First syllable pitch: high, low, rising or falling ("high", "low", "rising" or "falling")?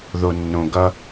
low